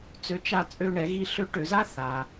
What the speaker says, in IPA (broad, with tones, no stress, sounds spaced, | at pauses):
t͡s ø˧˥ t͡ʃ a˧ t͡sʼ ø˧ ɳ ɛ˩˧ ɣ i˧ ɬ ø˧˥ ʈ ø˩˧ z a˥ θ a˩